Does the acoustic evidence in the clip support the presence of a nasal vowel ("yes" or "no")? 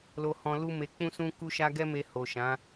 yes